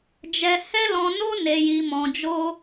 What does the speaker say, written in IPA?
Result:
d͡ʒ ɛ˧ h ɛ˦ l ɔ̃˧ n o˦ n e˧ j i˧ m ɔ̃˧ d͡ʒ o˦

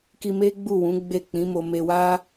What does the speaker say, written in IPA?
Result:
k i˧ m e˦ ɡ͡b u˦˨ w ũ˨˦ ɡ͡b e˦˨ k͡p ĩ˨˦ m o˧ m e˧ w a˦

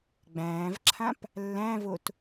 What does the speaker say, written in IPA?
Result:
ɡ͡b æ̃ː v ǁʰ ã p | lː æ̃ v o t

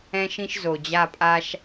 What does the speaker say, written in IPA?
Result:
ɛ̃˥ ʃ ĩ˥ ʃ z o˩ d͡ʑ a˦˨ pʼ a˥ ʃ

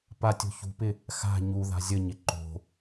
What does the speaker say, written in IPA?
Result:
p a tʲ o̤ ç ṳ p ɪ | x a̤ ɲ u ð a̤ zʲ ə ɲ ɪ ǃ o̤

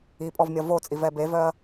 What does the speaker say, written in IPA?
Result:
i pʼ ɔ v mʲ ʌ v o t͡sʼ i v ɛ b e v œ ɐ̯

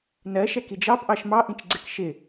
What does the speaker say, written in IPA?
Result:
n ɜ ʃ ɛ k i d͡ʒ ɑ p ʔ ɑ ʃ m ɑ ʔ ĩ t͡ʃ ɡ͡ǀ ɪ k ʃ ɪ

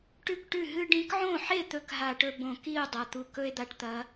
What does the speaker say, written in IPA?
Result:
ʈ ʉ˥˩ k ʈ ʉ˥˩ ɦ ɨ˧ ɖ ĩ˨˥ k ʕ õ˥˩ ħ e˥˩ t̪ ɵ˥˩ k ɦ a˧˩˧ ʈ ɵ˧ b õ˧˩˧ k i˥˩ o̯ dˤ ɐ˩˧˩ t̪ u˧ k ɵ˥ e̯ d̪ a˧ ʈ t̪ ɐ˨˥

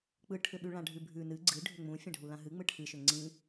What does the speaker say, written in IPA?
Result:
k͡p ɯ ʈʰ ʏ ɓ ʉ ɭ ã ɖʱ ʉ bʱ ʉ n ɨ ɡ͡ǀ ɨ ɖʱ ʏ ŋ͡m ũ fʲ ã ɖʱ u l ã ɦ ɨ ŋ͡m ɯ ʈʰ ɨ ʃ ʏ ŋ͡ǀ ĩ

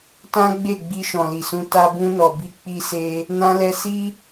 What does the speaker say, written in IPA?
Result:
t ã˦ ɡ͡b e˦˨ ɡ͡b i˧ ʃ ɔ̃˨ l i˨ s ũ˧ t a˧ b ũ˧ n ɔ˨ b i˨˦ k͡p i˧ s e˧ | n ã˧ l ɛ˧ s i˦

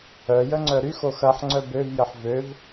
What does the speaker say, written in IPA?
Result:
œ j ə ŋ͡ǀ œ ɾ y x o x ɐ ħ ŋ͡ǀ œ b ø v j ə ħ v ø v

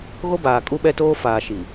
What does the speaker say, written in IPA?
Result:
ɣ o˦ b aː˨ kʼ u˦ ɓ ɛ˦ t oː˦ f aː˨ ʃ i˨

